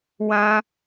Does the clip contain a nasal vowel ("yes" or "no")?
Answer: yes